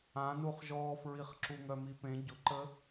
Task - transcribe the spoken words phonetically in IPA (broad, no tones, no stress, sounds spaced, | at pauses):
ã n u χ ʒ ɔː f ɹ i χ ǁ u ŋ œ m i p ẽ ɟ ʊ ǃ ə